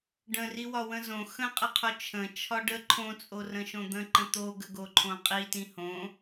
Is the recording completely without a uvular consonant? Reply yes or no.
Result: no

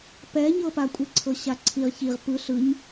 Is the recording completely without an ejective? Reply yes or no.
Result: no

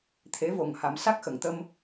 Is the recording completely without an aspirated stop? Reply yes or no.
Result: no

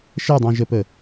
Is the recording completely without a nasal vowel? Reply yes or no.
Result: no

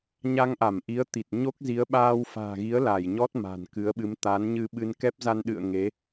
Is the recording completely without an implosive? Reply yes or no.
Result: no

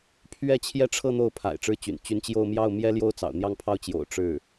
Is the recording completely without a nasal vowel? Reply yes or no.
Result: yes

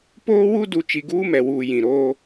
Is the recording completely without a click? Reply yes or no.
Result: yes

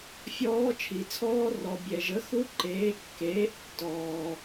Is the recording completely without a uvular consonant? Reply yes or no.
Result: yes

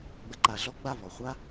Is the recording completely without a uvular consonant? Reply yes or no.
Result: no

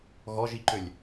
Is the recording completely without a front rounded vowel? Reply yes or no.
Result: no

